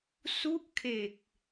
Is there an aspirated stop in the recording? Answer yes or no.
yes